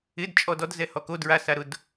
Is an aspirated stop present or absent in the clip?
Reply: absent